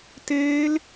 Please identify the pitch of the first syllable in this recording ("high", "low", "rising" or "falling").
high